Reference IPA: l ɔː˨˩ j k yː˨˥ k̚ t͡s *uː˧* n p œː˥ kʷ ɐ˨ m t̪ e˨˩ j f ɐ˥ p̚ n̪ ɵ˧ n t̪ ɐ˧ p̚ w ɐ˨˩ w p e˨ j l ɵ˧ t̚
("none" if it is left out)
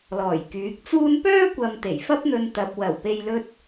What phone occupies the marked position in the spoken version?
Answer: uː˥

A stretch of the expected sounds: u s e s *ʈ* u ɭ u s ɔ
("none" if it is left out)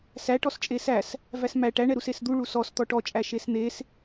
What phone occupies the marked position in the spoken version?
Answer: d̪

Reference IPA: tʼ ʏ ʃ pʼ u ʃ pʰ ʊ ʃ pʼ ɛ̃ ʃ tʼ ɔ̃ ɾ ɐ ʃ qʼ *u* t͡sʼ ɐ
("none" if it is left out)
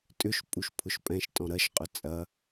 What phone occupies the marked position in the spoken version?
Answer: ʏ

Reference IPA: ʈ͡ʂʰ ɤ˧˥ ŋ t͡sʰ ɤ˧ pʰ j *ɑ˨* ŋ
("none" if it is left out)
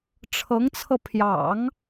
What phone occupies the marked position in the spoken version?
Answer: ɑ̰˨˩˦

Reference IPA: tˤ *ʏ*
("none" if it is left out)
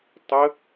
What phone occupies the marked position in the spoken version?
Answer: ə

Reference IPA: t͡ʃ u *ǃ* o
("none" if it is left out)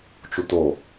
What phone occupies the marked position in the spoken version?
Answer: t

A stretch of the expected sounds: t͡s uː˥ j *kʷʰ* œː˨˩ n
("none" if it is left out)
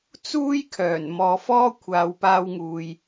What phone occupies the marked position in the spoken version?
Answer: kʰ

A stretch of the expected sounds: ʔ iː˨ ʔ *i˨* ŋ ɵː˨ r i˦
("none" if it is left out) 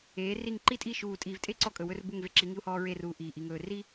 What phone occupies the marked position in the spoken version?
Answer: i˨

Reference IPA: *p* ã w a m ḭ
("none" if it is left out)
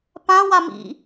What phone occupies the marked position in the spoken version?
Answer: p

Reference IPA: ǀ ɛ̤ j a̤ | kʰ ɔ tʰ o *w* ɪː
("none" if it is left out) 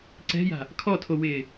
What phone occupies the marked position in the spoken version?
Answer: w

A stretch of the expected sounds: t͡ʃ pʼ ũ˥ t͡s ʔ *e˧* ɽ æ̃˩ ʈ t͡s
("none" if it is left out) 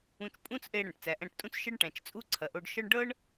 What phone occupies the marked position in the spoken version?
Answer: e˧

